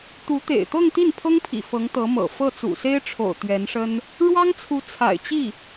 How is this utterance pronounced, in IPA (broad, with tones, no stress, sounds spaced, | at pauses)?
t̪ u˧˥ t̪ ḛ˨˩ ɪ̯ t̪ ɤ˥˧ ŋ t̪ i˥˩ n pʰ ɤ˥ ŋ pʰ ḭ˨˩ f ɤ˧˥ ŋ t̪ ɤ˧˥ m ɤ̰˨˩ f ɤ˥˩ t͡s ṵ˨˩ s e˥ ɪ̯ ʈ͡ʂʰ o̰˨˩ ʊ̯ t̪ ɥ ɛ˧˥ n ʂ ə˥ n | ɻ w ɑ˥ ŋ t͡sʰ u˧˥ t͡sʰ a̰˨˩ ɪ̯ t͡ɕ i˥˩